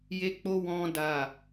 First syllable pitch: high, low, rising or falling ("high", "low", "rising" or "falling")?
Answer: high